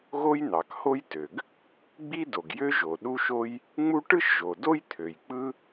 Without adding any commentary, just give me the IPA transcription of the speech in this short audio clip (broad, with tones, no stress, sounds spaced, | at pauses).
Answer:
ɣ o˥ j n̪ ɑ˩ k h o˥ j t ø˩ ɡ | ɡ͡b i˥ d o˩ ɡ j ø˥ ʒ o˩ ɗ u˥ ʃ o˥ j | ŋ͡m u˥ ʈ ɯ˥ ʃ ʒ o˩ d o˥ j t̪ʰ ø˩ j k͡p ɯ˥